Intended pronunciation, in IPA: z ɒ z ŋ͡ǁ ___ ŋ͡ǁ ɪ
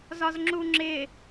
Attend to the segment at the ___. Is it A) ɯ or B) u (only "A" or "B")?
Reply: B